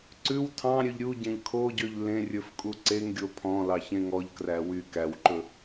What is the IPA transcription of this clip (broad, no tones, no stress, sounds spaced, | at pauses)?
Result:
ǀ ʉ w tʰ ɑ̃ ɾʲ ø ʎ ɾʲ u ɟ ẽ ʎ kʰ o ɟ ø ʎ l ẽ rʲ ɵ f kʼ u ǀ e ŋ ɡʲ o pʰ ɔ̃ l ɑ ç ẽ ŋ ɔ ʎ k r æ w y k æ w ǃ ɵ